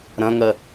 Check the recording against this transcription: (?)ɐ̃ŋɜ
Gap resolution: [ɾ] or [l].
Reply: ɾ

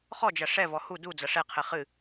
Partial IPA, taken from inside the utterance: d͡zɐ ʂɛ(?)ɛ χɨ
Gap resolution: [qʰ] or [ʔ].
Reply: qʰ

